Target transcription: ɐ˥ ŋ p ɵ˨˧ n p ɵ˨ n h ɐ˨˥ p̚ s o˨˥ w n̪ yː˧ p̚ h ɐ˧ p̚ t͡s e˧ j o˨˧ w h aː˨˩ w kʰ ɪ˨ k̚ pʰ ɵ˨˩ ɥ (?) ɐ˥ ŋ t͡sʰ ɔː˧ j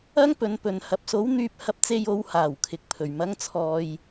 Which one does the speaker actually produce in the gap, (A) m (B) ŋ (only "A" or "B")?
A